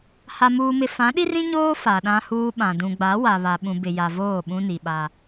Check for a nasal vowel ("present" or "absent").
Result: present